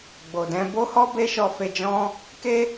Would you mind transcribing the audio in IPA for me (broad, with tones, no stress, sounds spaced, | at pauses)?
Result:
ɡ͡b o˨ d ɛ̃˧ b o˦ h ɔ˦ b e˦ ʃ ɔ˧ f e˧ d͡ʒ ɔ̃˦ | k e˦